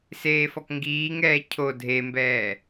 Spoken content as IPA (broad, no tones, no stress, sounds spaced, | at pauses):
s eː f ɔ k ŋ ɡ iː ŋ ɛː cʰ o dʱ e m b ɛː